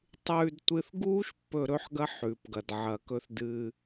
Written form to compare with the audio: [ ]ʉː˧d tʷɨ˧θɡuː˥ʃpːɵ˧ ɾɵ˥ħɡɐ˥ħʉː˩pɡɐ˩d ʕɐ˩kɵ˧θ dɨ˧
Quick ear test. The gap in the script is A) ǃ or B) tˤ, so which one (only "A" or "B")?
B